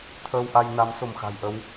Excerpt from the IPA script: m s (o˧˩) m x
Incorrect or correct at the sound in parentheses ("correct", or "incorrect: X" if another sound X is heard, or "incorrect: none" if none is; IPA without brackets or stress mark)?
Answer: correct